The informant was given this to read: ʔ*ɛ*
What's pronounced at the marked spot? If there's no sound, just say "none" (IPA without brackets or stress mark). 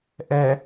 ɛ